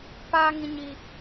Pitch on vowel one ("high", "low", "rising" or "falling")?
high